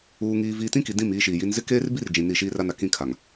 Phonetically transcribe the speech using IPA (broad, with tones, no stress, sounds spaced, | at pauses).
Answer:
uː˨ ŋ iː˨ v iː˨ t ĩ˦ k i˨ d ĩ˦˨ m iː˦ ʃ iː˨ j i˦ n z ɪ˦ k eː˦ r b i˦ r d͡ʒ ĩ˨ n i˦˨ ʃ iː˦ r a˦ n a˨ k ĩ˦ kʰ a˨ ŋ